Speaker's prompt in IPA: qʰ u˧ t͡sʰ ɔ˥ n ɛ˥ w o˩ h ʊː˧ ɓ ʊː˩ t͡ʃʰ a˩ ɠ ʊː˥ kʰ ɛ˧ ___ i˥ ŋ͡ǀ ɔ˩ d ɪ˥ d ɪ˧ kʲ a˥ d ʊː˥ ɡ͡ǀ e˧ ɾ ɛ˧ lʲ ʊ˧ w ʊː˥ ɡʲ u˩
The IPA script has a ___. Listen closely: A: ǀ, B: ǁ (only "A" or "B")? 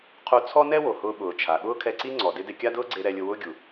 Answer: A